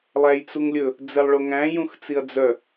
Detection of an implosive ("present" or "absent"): absent